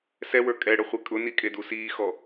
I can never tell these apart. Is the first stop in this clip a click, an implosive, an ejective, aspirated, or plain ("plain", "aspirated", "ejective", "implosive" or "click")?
ejective